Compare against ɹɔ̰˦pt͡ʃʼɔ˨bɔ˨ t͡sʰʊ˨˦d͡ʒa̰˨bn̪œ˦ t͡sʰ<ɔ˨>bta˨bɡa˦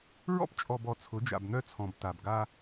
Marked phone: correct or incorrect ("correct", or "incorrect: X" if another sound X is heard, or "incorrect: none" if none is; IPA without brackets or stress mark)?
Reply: incorrect: ɔ̃˨